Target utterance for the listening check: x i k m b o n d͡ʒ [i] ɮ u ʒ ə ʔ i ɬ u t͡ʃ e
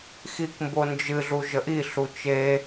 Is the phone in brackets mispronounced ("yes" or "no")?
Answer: yes